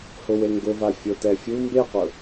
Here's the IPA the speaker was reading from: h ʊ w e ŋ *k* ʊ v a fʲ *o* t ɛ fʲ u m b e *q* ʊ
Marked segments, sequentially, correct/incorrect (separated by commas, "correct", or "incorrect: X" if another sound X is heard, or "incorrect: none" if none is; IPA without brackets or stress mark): incorrect: ɡ, correct, correct